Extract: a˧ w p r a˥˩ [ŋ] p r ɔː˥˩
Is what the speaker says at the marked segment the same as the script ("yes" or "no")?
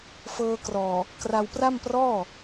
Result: no